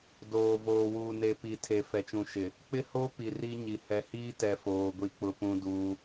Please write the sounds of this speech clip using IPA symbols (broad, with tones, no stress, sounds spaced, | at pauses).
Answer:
d oː˨ v oː˨ w uː˨ n e˨ p i˨ tʰ e˨ f ɛ˨ t͡ʃ ũ˨ ʃ ɪ˨ | k͡p ɪ˦ h o˦ p i˨ r i˦ ɲ i˨ h ɛ˨ h iː˦ t ɛ˨ f oː˨ ɡʷ i˦ k͡p ʊ˦ p ũ˦ d uː˦